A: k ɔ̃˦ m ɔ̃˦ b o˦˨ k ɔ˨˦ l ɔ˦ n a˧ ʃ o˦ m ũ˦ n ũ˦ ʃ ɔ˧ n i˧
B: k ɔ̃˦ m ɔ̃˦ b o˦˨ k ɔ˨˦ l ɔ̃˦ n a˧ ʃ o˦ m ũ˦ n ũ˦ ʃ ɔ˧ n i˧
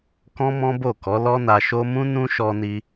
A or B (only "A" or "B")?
A